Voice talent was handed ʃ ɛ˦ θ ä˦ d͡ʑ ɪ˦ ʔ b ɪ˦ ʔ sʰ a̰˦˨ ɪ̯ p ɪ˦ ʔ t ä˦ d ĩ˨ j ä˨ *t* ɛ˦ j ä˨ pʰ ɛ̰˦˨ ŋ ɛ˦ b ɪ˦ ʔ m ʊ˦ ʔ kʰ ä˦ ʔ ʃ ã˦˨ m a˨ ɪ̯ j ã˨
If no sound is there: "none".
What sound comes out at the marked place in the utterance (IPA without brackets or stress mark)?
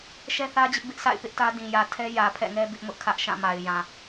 tʰ